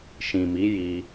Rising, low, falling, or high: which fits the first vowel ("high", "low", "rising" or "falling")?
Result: low